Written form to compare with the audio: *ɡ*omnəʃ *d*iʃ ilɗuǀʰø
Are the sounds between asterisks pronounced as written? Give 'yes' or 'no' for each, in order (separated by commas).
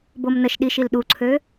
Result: no, no